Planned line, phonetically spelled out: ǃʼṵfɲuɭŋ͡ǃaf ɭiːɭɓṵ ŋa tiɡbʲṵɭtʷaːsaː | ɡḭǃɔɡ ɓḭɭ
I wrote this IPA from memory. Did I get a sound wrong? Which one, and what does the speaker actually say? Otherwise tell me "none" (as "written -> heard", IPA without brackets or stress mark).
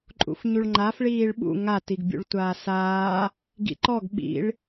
none